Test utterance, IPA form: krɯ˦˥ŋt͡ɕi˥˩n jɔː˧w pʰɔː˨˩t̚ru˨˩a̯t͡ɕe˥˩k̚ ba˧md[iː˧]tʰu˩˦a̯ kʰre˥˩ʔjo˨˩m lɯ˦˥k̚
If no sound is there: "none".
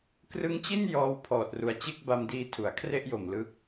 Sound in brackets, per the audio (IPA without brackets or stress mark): iː˧